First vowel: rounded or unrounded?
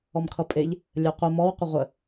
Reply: rounded